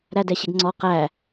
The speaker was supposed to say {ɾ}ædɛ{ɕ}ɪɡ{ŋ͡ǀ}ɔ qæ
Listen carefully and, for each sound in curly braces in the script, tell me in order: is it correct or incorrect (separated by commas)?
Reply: correct, correct, correct